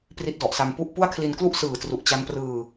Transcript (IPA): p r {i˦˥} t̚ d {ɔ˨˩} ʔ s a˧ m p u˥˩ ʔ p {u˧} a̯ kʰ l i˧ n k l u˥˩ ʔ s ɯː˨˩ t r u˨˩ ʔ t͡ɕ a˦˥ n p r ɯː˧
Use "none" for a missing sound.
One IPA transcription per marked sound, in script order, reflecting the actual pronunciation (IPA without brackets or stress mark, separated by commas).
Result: i˦˥, ɔ˨˩, u˥˩